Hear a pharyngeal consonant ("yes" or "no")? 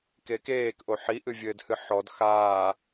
yes